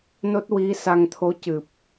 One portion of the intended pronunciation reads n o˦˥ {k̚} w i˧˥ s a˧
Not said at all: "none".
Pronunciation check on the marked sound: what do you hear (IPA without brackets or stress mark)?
t̚